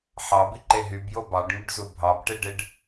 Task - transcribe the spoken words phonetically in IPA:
ħ ɑ b i ǃ e ɦ y b j o b ɑ ɖ ŋ y ɖ z u bʱ ɑ b ʈ e ɖ e ɖ

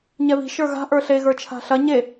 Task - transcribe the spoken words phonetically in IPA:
ɲ ɛ β i̤ ʃ ə˞ ɣ a̤ ʔ ə˞ ɬ e ɣ ə˞ t͡ʃʰ a̤ ɬ ɐ ɲ e

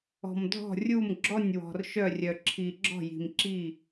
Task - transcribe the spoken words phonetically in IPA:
ɔ̤˩ m dʱ ɔ̤˧˩ rʲ u˧˩ m ɡ͡ǁ ɔ˧˩ nʲ w ɔ̤˩ r ʃ œ˧˩ rʲ œ˩ ǁʰ i˩ ɡ͡ǁ ɔ̤˧˩ j i̤˩ m ǁ i˧˩

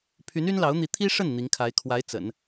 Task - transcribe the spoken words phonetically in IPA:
pʰ y˧˥ n y˥ n l ɑ˧˥ ʊ̯ n̪ i˧˥ t̪ʰ i˥ ʂ ə˥˩ n n̪ i˧˥ ŋ kʰ a˧˥ ɪ̯ kʰ w a˧˥ ɪ̯ t͡s ə̰˨˩˦ n

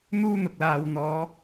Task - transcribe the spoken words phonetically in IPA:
n̪ uː˥ n̪ ʊ˨ k̚ l aː˨ w n̪ ɔː˨˧

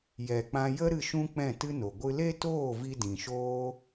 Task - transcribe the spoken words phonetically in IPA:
j ɛ˨ k͡p ã˧ j ə˦ ɾ ɨ˧ ʃ ũ˦ k͡p ɛ̃˦˨ t ɨ˦ n o˨ ɡʷ ɨ˧ l e˦ t oː˦˨ v i˧ d ĩ˨ ʃ oː˦

